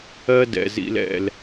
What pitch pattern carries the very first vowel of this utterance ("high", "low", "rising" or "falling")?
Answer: high